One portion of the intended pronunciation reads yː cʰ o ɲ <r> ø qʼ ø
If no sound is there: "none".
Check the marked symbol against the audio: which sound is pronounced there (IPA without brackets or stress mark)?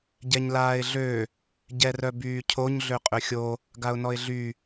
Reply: ɮ